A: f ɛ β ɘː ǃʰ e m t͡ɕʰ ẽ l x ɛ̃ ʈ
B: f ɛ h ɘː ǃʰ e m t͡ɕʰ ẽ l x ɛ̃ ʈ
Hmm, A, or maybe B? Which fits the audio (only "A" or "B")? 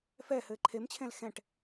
B